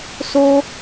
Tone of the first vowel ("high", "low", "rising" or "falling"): high